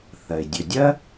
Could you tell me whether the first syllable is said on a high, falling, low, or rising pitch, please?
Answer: low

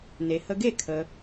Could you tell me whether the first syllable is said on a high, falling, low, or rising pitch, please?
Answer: low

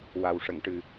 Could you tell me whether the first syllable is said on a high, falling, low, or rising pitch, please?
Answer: low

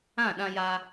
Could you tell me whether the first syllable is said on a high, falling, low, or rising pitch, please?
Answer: falling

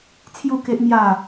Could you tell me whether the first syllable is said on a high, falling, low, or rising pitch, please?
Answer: falling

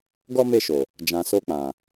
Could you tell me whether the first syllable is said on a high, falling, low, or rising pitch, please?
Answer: high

